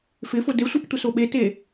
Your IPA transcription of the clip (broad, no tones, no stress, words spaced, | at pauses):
fɪfʊ desʷip tʷɪsoɓete